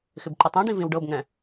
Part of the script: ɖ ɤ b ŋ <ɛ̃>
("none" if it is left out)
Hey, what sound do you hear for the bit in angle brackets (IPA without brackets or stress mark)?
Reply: ɛ̃